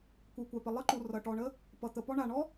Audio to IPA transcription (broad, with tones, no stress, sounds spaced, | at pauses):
kʷ e˩ kʷ a˩ p ə˩ lˠ ə˥ ǃ u˩ r ʌ˩ ʈ ɔ˩ ɳ ə˥ | p ʌ˩ t̪ ə˩ p ɔ˥ ɳ a˩ ɳ ɔ˥